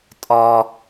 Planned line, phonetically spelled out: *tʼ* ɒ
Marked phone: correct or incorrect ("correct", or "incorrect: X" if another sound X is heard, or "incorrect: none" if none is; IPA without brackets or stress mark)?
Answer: correct